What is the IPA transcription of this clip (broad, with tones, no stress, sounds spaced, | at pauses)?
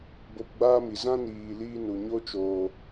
b o˧ p ɡ͡b aː˦ m i˨ z ã˦ n iː˨ l iː˦ n u˨ ɲ o˦ t͡ʃ oː˨